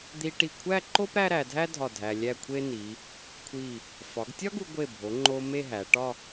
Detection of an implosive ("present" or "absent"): absent